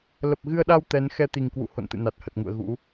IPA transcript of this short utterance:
l ə˨˩ p̚ ɣ ɨ˧ ə̯ ɗ a˧ w t̪ ɛ˨˦ n x ɛ˧ t̪ i˨˩ ŋ k w ṵ˧˨ h o̰˧˨ n t̪ ɨ̰˧˨ n a˨˩ t̚ h ə˨˩ t̚ ŋ ṵ˧˨ ə̯ ɣ ṵ˧˥

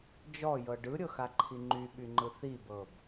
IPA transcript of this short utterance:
d͡ʒ ɔ j ɤ ɖ ɯ ɾʲ ɤ x a ǃʰ i ŋ͡ǃ y ɓ y ŋ͡ǃ ɯ θ i b ɤ b

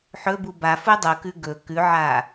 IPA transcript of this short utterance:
ħ ɵ b u b a f u dˤ u k ʉ ɡ ɵ k ʉ ʕ a

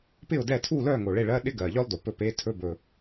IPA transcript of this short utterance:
p ɪ˥˨ ʊ̯ d ɛ˥˨ tʰ u˥˨ l œ˥˨ ŋ o˨˩ ɭ e˥˨ ɭ ɜ˧˥˧ ɗ ɪ˥ ɡ ɜ˨˩ ʎ œ˥ lˠ d o˨˩ p ɵ˥˨ p e˧˥˧ tʰ ɵ˧˥˧ b ɵ˨˩

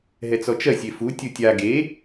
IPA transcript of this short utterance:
ɦ ɛ t͡s ɔ t͡ʃ ɜ sʲ e f u tʲ u tʲ a ɡ e

